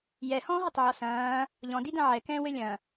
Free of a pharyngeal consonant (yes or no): no